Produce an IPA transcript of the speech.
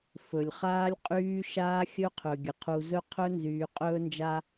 fɵ˨lʲχaː˦lʲqʼyː˦ ʃaː˦xʲɵ˦qʰɵ˨ ɡʲə˨qʰu˨zɵ˦qʰɵ˦ nzyː˨qʼɵː˦nd͡ʒa˦

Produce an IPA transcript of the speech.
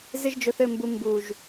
zɪ˦ʒd͡ʒɵ˧θɘ˦˨mbu˧ mbu˨ʒ

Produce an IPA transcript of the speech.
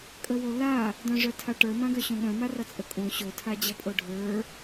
kʼəwola | dœ̃ʐœtʰaʈə˞ mãɡœɕõɠœ̃ marʌt͡sʼəkʼõ ɕo tʰad͡ʑʌpʼoɖʱə˞

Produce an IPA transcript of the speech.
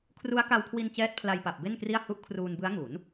kʰru˦˥a̯ka˧wkʰwi˧n t͡ɕɛː˦˥t̚pʰla˧jpa˨˩p̚ be˥˩nkri˥˩a̯ hu˦˥ʔkʰruː˧nbɯ˦˥a̯ŋu˩˦n

